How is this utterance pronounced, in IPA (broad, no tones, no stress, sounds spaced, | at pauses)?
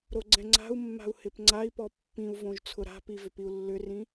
ɾ o ɡ͡ǀ ɛ̃ ŋ͡ǀ a̤ u̯ mː a̤ u̯ h ɪ p ŋ͡ǀ a i̯ p ɔ pː ĩ u̯ v õ ʒ t͡sʰ ʊ ɾ a̤ p i v ʏ p i u̯ lː ʏ r ĩ